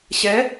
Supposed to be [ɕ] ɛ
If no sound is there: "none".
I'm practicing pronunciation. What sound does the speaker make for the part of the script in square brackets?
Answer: ɕ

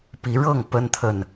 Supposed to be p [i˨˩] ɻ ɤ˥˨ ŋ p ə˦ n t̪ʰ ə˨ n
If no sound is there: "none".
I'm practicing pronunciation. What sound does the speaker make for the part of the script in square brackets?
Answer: i˨˦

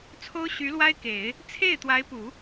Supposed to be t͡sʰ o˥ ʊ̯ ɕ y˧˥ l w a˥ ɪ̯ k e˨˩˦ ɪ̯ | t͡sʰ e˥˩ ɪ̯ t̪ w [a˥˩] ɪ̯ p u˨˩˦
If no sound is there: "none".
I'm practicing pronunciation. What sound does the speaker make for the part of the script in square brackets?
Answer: a˧˥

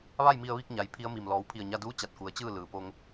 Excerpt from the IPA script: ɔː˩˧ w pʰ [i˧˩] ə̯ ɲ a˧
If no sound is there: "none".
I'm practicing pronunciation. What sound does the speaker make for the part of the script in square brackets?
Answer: i˧˩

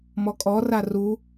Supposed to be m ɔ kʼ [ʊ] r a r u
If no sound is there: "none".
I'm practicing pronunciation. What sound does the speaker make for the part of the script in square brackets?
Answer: ɔ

